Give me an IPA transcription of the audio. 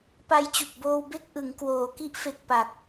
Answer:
p a˧ j t͡ɕ u˨˩ k̚ b oː˧ w b e˥˩ k̚ ʔ ɯ˩˦ ŋ k w oː˩˦ k i˦˥ ʔ f e˨˩ k̚ p a˨˩ k̚

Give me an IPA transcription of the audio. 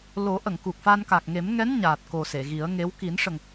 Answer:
l o˨˩˦ ʔ ə˨˩˨ ŋ k u˨˩ k̚ f a˧ n k a˨˩ k̚ ŋ e˨˩˦ m ŋ ɛ˧˥ n ɲ aː˨˩ t̚ k o˨˩ s e˨˩˨ ɣ i˨˩˦ ə̯ ŋ e˧˥ w k i˨˩˦ n ʂ ə˨˩ ŋ

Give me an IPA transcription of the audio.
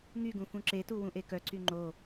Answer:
ŋ y ɡ ũ f ũ ǁ e t u w ũ ʔ e k œ ǀ y ŋ͡ǃ o

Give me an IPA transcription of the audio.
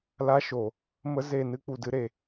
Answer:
l a˦ ʃ o˨ | m ə˦ z e˦˨ n ɨ˦ k͡p u˨ d ɨ˦ ɾ e˨

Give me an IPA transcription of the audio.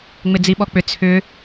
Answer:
ŋ͡m ɪ d͡z i ɓ ɔ k͡p ʏ t͡sʰ ʏ

